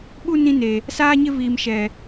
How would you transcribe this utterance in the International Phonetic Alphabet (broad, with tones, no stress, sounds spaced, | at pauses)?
ɓ u˦ n ĩ˦ n e˨ | s aː˦ ɲ ɪ˦ v iː˨ m ʃ ɛ˨